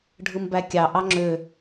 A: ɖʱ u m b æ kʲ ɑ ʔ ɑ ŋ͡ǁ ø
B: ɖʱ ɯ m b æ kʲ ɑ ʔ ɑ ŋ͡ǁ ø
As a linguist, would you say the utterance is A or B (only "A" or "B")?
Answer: B